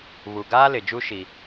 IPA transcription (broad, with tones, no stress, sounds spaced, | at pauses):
β u˨ ɡ aː˦ l ɪ˨ d͡ʒ u˦ ʃ i˦